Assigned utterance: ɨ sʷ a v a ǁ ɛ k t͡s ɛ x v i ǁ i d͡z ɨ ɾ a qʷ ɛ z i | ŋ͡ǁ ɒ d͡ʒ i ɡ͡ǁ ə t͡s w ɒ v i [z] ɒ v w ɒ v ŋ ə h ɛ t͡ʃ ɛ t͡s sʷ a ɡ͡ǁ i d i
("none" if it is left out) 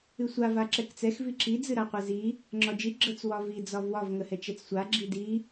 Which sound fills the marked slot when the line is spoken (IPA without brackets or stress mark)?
d͡z